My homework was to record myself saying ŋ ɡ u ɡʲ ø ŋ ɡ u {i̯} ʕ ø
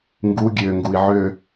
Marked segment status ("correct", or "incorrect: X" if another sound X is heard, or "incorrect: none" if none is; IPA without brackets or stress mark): correct